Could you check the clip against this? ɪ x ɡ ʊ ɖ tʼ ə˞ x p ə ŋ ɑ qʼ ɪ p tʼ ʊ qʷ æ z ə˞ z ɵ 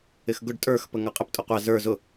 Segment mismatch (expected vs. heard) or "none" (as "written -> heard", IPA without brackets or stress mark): ɵ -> ʊ